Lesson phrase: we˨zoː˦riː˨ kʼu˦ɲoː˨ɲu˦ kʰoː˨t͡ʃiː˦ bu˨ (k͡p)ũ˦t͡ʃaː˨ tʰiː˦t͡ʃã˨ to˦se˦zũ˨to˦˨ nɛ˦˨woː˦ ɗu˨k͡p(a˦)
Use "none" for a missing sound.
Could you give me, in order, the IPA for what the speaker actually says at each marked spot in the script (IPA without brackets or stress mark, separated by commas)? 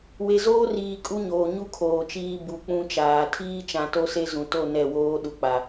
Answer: k͡p, a˨